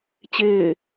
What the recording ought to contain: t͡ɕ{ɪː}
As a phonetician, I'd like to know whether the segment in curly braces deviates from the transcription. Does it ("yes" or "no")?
no